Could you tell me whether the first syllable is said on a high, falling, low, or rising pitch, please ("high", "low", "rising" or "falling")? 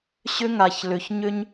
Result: high